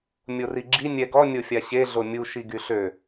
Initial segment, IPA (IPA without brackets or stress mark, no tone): mʲ